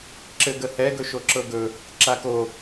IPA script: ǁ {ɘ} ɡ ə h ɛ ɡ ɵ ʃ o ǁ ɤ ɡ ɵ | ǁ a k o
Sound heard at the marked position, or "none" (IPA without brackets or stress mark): ɘ